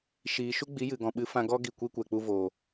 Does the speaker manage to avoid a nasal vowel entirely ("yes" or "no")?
no